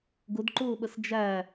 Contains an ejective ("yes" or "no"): no